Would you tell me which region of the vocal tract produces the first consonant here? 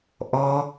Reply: throat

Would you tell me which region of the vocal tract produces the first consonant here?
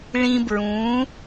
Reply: retroflex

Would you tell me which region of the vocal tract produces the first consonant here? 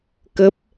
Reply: velum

